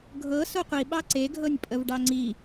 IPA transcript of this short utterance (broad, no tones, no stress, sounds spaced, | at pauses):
ɡʱ ɤ s o qʷ i ɓ ɑ ǀ e ɡʱ ɤ nʲ pʼ ə v ɖ ɑ ŋ͡ǀ i